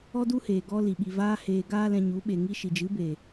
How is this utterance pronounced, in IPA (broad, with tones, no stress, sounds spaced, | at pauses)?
ɔ˦ d u˦ h eː˨ ɡ ɔ˧ l i˨ ɓ i˨ v aː˧ h eː˨ ɡ aː˦ l ɛ̃˧ ɲ u˨˦ ɓ e˨ ŋ i˦ ʃ i˨ d͡ʒ ɨ˨˦ b e˨